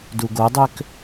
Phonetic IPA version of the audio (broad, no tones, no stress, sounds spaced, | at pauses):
d u ɡ o dˤ ø k